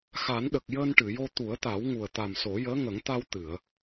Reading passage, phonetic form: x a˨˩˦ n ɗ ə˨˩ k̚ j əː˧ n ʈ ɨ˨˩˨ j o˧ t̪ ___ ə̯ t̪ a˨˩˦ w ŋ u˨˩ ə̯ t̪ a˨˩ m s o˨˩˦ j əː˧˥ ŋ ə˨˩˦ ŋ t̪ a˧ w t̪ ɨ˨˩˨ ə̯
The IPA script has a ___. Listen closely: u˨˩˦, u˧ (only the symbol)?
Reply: u˨˩˦